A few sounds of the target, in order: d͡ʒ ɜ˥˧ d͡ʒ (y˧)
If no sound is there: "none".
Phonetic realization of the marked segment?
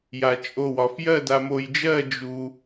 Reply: u˧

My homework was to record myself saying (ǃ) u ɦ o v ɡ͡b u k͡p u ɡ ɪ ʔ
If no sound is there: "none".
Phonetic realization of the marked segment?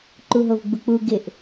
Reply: ǃ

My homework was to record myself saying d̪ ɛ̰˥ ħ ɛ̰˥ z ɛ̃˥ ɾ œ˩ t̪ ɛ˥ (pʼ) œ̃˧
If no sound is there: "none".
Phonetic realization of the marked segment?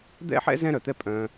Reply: pʼ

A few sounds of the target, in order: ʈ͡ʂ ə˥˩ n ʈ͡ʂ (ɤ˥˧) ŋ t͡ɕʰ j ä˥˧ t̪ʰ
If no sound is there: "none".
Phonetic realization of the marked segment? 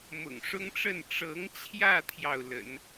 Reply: ɤ˧˥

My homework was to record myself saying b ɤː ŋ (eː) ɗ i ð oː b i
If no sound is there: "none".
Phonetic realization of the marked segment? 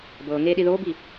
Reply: eː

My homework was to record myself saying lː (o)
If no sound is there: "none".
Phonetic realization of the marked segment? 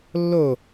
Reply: o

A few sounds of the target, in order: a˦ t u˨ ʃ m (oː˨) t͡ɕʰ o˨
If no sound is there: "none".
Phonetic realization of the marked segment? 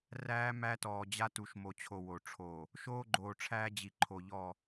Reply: o˨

